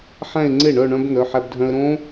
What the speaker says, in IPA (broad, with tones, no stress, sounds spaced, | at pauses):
ħ æ̃˥˧ ɪ̯ ŋ͡ǀ e˥˩ ɳ œ˥˧ ɳ œ̃˦˥ b n̪ œ˩˧˩ ħ æ˧ b dʱ œ̃˧ ə̯ ɾ õ˦˥